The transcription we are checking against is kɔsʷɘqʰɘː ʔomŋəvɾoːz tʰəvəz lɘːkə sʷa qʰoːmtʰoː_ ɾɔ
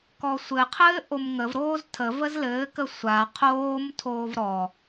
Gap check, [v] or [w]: v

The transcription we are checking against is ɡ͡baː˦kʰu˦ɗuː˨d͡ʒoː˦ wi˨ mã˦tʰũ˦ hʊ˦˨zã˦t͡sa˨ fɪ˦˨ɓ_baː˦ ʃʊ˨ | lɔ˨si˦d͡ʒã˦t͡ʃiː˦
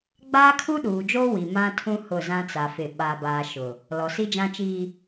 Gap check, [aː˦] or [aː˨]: aː˦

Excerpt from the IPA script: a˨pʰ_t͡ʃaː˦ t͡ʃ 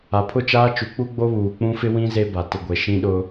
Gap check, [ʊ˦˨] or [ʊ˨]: ʊ˦˨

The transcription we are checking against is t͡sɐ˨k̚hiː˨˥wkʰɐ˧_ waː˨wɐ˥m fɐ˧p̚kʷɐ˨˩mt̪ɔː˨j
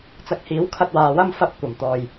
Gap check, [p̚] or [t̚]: t̚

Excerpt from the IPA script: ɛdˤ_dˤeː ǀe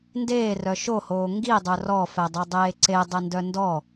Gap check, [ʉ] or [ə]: ʉ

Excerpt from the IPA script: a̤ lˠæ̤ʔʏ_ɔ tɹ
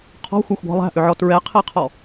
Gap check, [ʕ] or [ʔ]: ʕ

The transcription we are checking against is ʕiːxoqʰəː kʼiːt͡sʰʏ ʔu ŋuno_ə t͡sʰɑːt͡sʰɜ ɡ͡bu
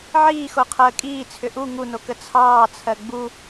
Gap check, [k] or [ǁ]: k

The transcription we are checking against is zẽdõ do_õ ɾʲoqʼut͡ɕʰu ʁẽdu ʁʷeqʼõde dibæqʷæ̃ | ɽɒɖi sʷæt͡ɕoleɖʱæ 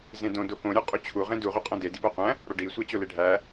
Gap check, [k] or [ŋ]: k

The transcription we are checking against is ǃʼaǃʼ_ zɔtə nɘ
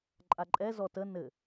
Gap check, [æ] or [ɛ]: ɛ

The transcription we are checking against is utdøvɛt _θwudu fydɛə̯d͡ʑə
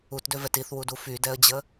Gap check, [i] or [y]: i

